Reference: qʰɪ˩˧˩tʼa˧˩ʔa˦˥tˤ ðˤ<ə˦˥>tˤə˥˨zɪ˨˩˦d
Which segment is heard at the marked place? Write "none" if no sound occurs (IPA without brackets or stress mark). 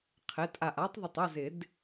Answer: ə˧˩